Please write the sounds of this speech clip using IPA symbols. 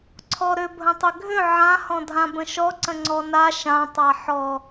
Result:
ǀʰɔɾʏ bʱə̃tˤʏɡʱʏ ʕãhɔ̃dʱã bə̃ʃɔǀə̃ ŋ͡ǀɔna ʃã tˤaħɔ

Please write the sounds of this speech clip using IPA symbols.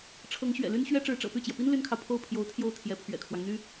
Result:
ʈ͡ʂʰɤ˧˥ŋɕɥɛ̰˨˩ly˥n ɕɥɛ˥ʈ͡ʂɻ̩˧˥ʈ͡ʂɤ̰˨˩ py˥˩t͡ɕjɛ˩pi˥n ly˥nkʰɑ˨ʊ̯ pʰo˥˩ʊ̯ pʰjo˧˥ʊ̯t̪ʰjo˥˩ʊ̯ t̪ʰjɛ˧˥pʰɥɛ̰˨˩kʰwɑ˦ŋn̪y˥

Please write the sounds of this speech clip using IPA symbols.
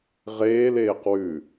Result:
ʁeːleːq wʉ

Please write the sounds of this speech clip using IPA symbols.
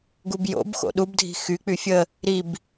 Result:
ɡubjo̰bxo̰ ɗubdʱi̤ xyk͡py fʲə | ɾib

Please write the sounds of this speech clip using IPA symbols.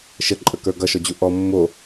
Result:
ʃəǃʼəkə˞ ɡʌʃɔd͡ʑu ʔɔ mːo

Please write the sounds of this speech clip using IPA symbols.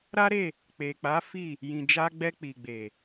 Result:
ɾa˦ɾe˦˨ | k͡pe˨k͡pa˨˦ fi˦˨ | jĩ˨d͡ʒa˧ɡ͡bɛ˧ k͡pi˨ɡ͡be˨

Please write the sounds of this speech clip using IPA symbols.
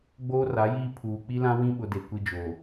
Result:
ɡ͡boː˦ra˨˦jiː˦ pʰuː˨ k͡pi˦lã˦wĩ˦ ɓʊ˦de˨ kʷi˦d͡ʒoː˨

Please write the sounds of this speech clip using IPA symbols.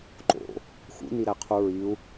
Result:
ǃo̰ | xṵniɾæqʰu ɹiu̯

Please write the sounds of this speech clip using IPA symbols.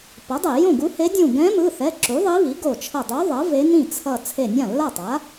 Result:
pʌ˩˥dˤe˧˩˧ jõ˥˩ɡu˧˥he˧˥ dʲũ˧˩ɡɛ̃˧˥mɯ˩˧˩θɛ˩˧˩ ǁu˩˥ðˤi˧˥βi˩˥ ɡo˧˩t͡ʃʰʌ˧˩dˤo˧˥ ðˤʌ˩˥ ve˧˥nĩ˥˩ t͡sʰʌ˧˩ t͡sʰe˧˩nʲã˥˩lːa˥˩tˤa˩˥

